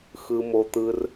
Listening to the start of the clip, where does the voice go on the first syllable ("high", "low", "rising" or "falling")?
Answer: low